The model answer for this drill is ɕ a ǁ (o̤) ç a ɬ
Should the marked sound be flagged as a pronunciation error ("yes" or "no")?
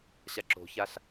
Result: no